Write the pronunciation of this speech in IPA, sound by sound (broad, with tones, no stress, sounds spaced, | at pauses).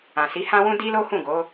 ã˨ s i˨˦ h ã˦ w ũ˦ d i˦ l o˦ h ũ˦˨ ɡ o˨˦